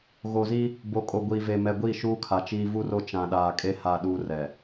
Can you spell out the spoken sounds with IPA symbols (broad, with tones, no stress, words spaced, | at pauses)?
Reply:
ɣo˨zi˦ | bo˨kʼo˨ ɡʷiː˨ve˨mɛ˨ ɡʷi˦˨ʃuː˦kʰa˨t͡ʃiː˦ vu˦ro˦ t͡ʃã˨ɗaː˨kʼe˦ ha˦ɗuː˦rɛ˨